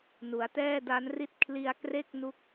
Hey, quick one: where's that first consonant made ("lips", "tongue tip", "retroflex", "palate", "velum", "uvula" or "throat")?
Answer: tongue tip